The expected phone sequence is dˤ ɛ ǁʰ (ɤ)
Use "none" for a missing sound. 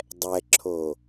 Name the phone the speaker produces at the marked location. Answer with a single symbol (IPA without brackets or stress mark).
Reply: o